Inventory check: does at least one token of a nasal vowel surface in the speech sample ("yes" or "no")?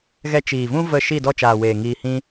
yes